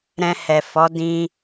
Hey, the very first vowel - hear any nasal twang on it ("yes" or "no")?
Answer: yes